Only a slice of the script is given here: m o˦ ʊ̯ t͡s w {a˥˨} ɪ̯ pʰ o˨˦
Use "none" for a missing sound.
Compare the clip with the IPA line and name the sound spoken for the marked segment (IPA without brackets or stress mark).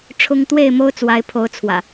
a˨˦